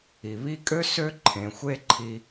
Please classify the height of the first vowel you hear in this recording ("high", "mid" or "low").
high